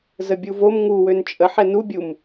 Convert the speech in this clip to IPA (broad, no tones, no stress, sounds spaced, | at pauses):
z ə bʲ u v o m ŋ u w ø n t͡ʃʼ ə ħ ɛ n u bʲ u m